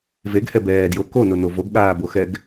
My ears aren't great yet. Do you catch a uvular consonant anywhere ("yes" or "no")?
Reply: no